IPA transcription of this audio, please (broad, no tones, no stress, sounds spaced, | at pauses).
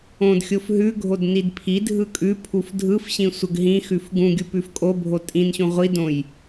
õ d xʲ o f ɦ ʉ ɡʱ o d n i d pʰ i dʱ ɯ kʼ ʉ pʰ u f dʱ ɯ f ɕ ĩ sʷ ə ɡ ɦ ĩ x ʉ f ɡ ũ ɡʲ u p ʉ f kʼ o bʱ o tʼ ĩ n ɕ ũ ʁʷ i d õ j